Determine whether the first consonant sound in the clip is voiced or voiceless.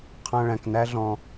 voiceless